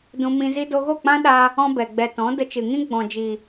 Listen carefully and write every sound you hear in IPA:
d ũ˧ m ĩ˧ z i˦ d o˧ ɣ o˦˨ k͡p ã˦ ɗ a˧ | ɔ̃˦ b ɛ˨ ɡ͡b ɛ˨ t ɔ̃˨˦ d ə˧ t͡ʃ ɨ˨ ŋ ĩ˦ ɡ͡b ɔ̃˨ d͡ʒ i˨

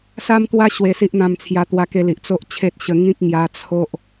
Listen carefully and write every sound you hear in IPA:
s a˦ m t̪ w a˦ ɕ w e˧ s i˦ ʔ n̪ ã˧ m t͡sʰ j a˧ t̪ w a˧ k e˧ l i˨ ʔ t͡s o˦ ʔ t͡ɕʰ e˦ t̚ ɕ ə˧ ŋ ĩ˦ k̚ ŋ j a˧ t͡sʰ o˦ ʔ

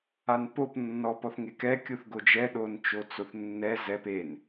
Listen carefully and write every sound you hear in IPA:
a n p o p nː ɔ p ɔ θ ŋ e k ɛ kʲ u θ ɡ o d͡ʒ ɛ ɗ o n t͡ʃ o t͡s o θ nː ɛ z ɛ p e n

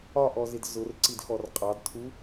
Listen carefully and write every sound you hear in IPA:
ɒ ʔ ɔ z ɪ d z ʊ r ǀ i d x ɔ r qʼ ɑ d tʰ u

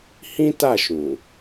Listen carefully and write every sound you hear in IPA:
h ĩ˦ t a˦˨ ʃ ũ˨

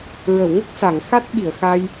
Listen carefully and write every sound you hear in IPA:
ɹ ə˨˩˨ w ŋ ə˦˥ k̚ s a˨˩˨ ŋ x a˦˥ t̚ ɓ i˨˩˨ ə̯ x a˧ j

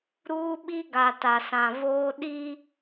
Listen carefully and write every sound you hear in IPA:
ɾ uː˦ ɓ i˦ ɡ a˨ t a˨ s ã˨ v oː˦ ɗ i˦

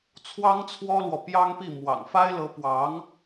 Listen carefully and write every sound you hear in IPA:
t͡sʰ w ɑ˥ ŋ t͡sʰ w ɔ˥ l w ɔ˨ p j ɑ˥ ŋ p i˥˩ m w ɑ̰˨˩ ŋ f a˥ ɪ̯ l ɤ˧˥ p w ɑ˧˥ ŋ

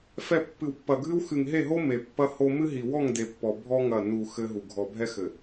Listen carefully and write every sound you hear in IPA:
f ɛ˨ pː ɨ˨ w pː ɐ˨ ɡʱ ɨ˦ w x ɨ˨ ŋ ɦ e˦˨ ɦ o˦ m e˨ pː ɐ˦ h o˦ m ɨ˦ ɦ i˨ w ɔ˦˨ ŋ d e˨ pː ɔ˨ bʱ ɔ˦ ŋ ɐ˦˨ n u˨ x ɘ˦ ɦ u˨ ɡʱ ɔ˨ bʱ ɛ˦ x ɘ˨

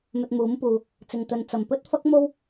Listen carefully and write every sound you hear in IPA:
m ɵ˧ t̚ m uː˨˥ m p uː˨ | t͡s ɪ˨ ŋ t̪ ɵ˨ n t͡s ɐ˨˩ m p ɵ˥ t̚ f ɐ˥ k̚ m o˥ w

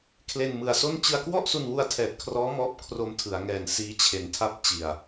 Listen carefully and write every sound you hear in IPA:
kʰ l e˧ n m ɯ˨˩ a̯ s o˥˩ n t͡ɕ ɯ˧ a̯ k w ɔ˥˩ ʔ s u˧ n w u˧ a̯ tʰ ɛː˨˩ t̚ kʰ r ɔː˦˥ m ɔː˦˥ p̚ kʰ r o˧ m tʰ ɯ˩˦ a̯ ŋ ɛː˨˩ n s iː˦˥ t͡ɕʰ e˨˩ n tʰ a˦˥ p̚ t͡ɕ i˨˩ a̯

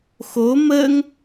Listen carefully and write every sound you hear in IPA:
x o m ə ŋ

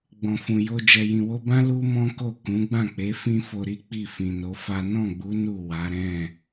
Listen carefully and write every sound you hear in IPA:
ɡ͡b ɔ̃˨ f ũ˨ j o˧ d͡ʒ ɛ˨ j ĩ˨ w o˧ b ã˦ l u˦ m ɔ̃˦ k o˦˨ k ũ˨˦ ɡ͡b ã˦˨ k͡p e˨˦ f ĩ˦ f o˧ ɾ i˦ k͡p i˦˨ f ĩ˨ n o˨˦ f a˦ n ɔ̃˦˨ ɡ͡b u˨˦ n u˦˨ w a˨˦ ɾ ɛ̃˦˨

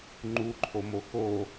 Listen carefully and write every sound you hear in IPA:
ŋ͡ǃ u ǃʰ o m o x o

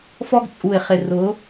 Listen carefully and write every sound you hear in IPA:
f ɔ˦ ɡ t͡sʼ u˨ ɪ̯ χ ɪ˨ r ʊ˨˦

